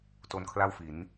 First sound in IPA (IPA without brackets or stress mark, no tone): t